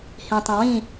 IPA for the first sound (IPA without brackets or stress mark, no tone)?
h